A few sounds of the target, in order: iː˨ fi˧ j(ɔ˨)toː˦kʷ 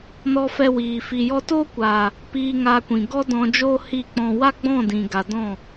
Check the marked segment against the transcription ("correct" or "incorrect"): incorrect